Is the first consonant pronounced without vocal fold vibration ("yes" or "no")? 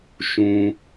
yes